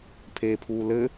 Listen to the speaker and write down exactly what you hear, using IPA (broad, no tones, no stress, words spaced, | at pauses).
pʰeːpʰuːlɘ